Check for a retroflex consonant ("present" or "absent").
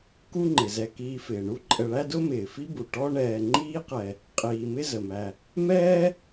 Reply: present